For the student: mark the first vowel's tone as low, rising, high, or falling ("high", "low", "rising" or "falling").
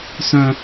high